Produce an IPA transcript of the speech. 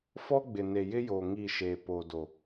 f ɔ˦ ɡ͡b ɪ˨ n e˨ j ɪ˦ j oː˨ ŋ i˦˨ ʃ eː˨ p o˨ d o˨

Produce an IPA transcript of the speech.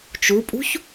t͡ʃ u pʼ ṳ ç

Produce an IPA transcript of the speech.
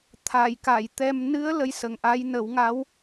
t̪ʰ a˨˩˨ j k a˨˩˨ j t̪ ɛ˧ m n ɨ˧˥ ə̯ l ə˧ j s ə˨˩ ŋ ʔ a˧˥ j n ə˨˩˦ w ŋ a˧˥ w

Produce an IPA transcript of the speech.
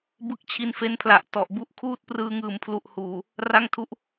b ɯ˦˥ k̚ t͡ɕʰ i˧ n f e˦˥ n pʰ l a˨˩ ʔ t ɔ˨˩ ʔ b u˦˥ ʔ kʰ uː˥˩ t̚ p r ɯː˧ ŋ ɯː˨˩ m pʰ l u˨˩ ʔ h uː˨˩ | r a˥˩ ŋ tʰ u˥˩ ʔ

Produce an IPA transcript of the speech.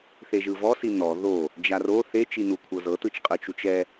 θ e ʒ ɯ v ɔ s i n ɔ ð o | d͡ʒ a r o θ e t͡ʃ i n u kʷʰ ɤ z ɤ t ɯ t͡ʃ qʼ ɯ t͡ʃ u t͡ʃ ɛ

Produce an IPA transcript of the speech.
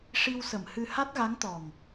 ʂ i˧ w s ə˨˩˨ m h ɨ˧ h a˦˥ t̚ ɣ a˧˥ ŋ t̪ ɔ˨˩ ŋ

